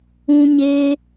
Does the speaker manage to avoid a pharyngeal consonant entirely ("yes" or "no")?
yes